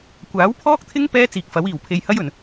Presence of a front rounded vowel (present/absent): absent